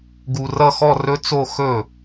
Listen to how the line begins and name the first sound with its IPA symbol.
ɡ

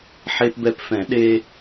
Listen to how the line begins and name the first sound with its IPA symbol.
ħ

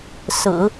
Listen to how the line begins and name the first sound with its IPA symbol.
s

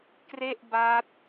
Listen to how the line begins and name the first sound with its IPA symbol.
k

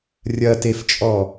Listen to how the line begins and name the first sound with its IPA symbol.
rʲ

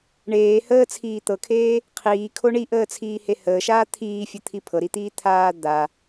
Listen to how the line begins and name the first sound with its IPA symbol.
ɳ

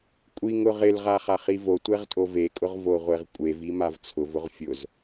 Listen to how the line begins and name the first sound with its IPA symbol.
kʷʼ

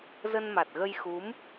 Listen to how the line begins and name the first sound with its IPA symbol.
z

